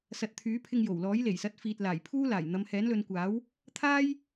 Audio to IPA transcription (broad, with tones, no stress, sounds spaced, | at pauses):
s ɐ˨ t̚ t̪ʰ yː˨˥ pʰ ɪ˧ ŋ j o˨˩ w l ɔː˨˥ j l e˨˩ j s ɐ˨˥ t̚ f iː˨ t̚ l aː˨˩ j pʰ uː˥ l aː˨˩ j n̪ ɐ˨˧ m h ɛː˨˥ n l ɵ˨˧ n kʷ aː˨˥ w | t̪ʰ aː˥ j